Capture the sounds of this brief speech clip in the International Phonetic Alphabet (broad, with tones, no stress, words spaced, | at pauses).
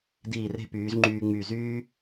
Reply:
diː˧˩re̤˧pyː˩˧z ŋ͡ǃyː˧ ŋ͡my˧˩zyː˥